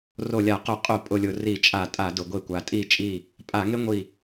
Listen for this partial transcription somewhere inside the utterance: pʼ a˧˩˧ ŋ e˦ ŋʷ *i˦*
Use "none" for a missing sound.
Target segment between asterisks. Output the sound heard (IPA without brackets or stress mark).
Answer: i˧˩